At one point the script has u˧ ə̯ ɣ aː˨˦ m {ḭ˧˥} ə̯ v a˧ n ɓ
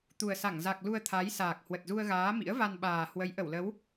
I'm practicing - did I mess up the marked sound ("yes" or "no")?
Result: no